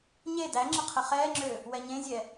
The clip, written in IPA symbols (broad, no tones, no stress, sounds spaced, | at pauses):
ɲ e d æ ŋ͡ǁ ə qʰ ə χ ɛː ŋ͡ǁ ø | w ɛ ɲ ẽ zʲ ɛ